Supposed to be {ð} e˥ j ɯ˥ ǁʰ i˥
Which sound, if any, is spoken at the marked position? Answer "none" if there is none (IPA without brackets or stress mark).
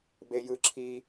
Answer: b